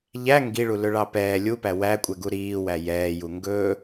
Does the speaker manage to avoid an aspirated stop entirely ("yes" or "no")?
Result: yes